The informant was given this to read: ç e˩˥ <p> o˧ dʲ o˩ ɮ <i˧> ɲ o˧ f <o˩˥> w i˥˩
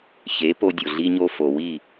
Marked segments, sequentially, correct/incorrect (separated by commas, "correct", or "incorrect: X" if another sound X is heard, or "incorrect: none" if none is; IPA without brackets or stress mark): correct, correct, incorrect: o˩